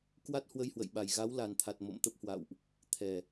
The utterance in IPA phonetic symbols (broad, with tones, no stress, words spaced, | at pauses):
kwa˦˥t̚hwə˧jhwə̰˧˨jɓa˨˩j ɣa˨˦wla˨˩nt̪ʰa˨˩t̚ mo̰˧˨mt̪ə˦˥p̚hwa̰˧˨wʔ | t̪ʰɛ˨˩